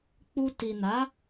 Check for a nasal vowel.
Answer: absent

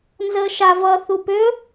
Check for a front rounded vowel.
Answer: present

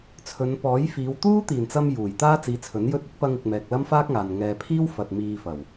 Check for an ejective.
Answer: absent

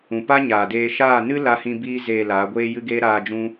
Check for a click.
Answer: absent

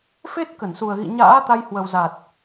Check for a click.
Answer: absent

